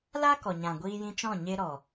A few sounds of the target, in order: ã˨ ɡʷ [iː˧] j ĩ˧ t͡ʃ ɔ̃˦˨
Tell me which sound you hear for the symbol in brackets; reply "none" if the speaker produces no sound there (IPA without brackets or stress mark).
iː˧